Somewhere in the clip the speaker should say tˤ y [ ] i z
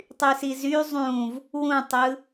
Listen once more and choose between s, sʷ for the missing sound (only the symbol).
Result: s